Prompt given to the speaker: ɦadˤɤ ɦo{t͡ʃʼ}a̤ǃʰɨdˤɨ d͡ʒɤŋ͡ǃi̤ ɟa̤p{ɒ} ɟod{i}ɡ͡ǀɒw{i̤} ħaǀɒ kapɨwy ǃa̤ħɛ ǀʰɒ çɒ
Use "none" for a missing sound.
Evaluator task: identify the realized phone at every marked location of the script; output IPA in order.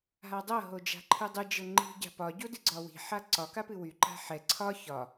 d͡ʒ, ɒ, ɨ, i̤

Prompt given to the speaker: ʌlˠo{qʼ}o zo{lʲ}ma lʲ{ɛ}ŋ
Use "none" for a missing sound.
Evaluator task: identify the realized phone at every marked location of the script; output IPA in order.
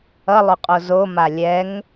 qʼ, none, ɛ

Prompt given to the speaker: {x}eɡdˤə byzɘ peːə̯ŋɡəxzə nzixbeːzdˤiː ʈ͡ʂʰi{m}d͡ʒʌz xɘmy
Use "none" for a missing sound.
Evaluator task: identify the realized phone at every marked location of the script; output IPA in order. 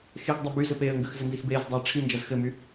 x, n

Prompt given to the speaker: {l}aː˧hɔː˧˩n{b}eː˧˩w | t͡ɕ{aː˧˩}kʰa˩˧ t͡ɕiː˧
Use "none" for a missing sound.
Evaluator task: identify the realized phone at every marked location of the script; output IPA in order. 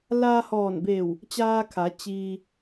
l, b, aː˧

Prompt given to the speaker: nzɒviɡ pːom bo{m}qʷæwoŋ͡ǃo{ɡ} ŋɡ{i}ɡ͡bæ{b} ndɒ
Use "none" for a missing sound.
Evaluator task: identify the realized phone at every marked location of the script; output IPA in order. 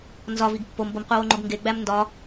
m, ɡ, e, m

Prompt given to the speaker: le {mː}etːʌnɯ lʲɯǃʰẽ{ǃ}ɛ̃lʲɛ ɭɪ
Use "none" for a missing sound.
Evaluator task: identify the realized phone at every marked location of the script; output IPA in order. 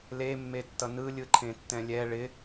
mː, tː

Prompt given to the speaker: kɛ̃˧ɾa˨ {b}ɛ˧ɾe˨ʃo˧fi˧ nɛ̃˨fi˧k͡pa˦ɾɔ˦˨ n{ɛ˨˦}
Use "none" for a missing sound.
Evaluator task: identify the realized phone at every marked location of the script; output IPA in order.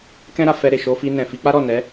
f, ɛ˨˦

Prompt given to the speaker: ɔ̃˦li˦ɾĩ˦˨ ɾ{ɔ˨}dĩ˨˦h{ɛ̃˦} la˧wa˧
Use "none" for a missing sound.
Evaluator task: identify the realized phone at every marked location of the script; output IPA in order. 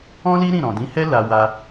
ɔ̃˨, ɛ˦

